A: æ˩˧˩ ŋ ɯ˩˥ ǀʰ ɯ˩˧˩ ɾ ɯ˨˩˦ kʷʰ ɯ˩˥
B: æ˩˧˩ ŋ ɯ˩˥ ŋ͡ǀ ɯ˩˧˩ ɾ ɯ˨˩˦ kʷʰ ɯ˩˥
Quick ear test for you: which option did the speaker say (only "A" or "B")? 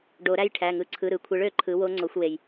A